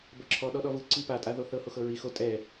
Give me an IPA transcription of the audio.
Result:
bɤǁʰɔ ɗɔɗɔvɯ ǀipa tʼaðoθɤ hoxɤɹi xo tʼɛ

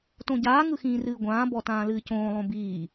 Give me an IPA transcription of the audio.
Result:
tõɟaː ŋɯxĩːrɨːɡʷãː bɔtãːlɨːcõː lˠõbiː

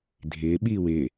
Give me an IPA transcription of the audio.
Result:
dʱɪː ɓiːwɪː

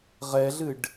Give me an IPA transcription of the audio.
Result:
ʁɛɮɨɖ

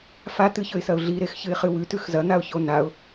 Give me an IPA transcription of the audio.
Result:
fat̪ɨçɵɪ̯sɐʊ̯ ɮiɾexçɨɪ̯χɨ wʉtʉx zɐn̪aʊ̯ço naʊ̯

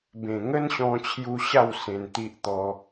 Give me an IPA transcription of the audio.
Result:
bẽ˨˩ŋə˦nɕɔ̃˧t͡ɕʰju˧ ɕa˥˧w sẽ˧nt̪i˦ʔt̪ɔ˧

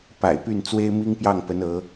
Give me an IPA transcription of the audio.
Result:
pa̰˨˩ɪ̯py˥˩n t͡swe˥ɪ̯mi˥ŋpjɑ˥˩ŋpə˧˥n ɤ˧˥

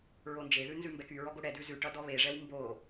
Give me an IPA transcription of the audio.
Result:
ɹond͡ʒeðʉ nzʉmbɛkyɹɔ ɡoɽɛdʉ zʉʈʌ dɔβeʐɛw mbo

